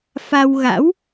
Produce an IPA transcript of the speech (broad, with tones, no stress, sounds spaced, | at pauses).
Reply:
f a˧ w ɣ a̰˧˥ w